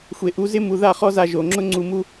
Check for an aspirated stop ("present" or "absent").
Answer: absent